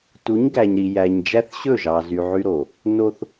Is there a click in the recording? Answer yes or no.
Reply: no